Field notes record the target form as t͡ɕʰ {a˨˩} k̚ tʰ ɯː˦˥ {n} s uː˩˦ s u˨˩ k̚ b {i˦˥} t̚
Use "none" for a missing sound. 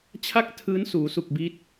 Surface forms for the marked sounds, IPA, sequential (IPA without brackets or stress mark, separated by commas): a˥˩, n, i˦˥